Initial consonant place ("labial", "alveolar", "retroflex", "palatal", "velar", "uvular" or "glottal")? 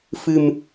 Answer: labial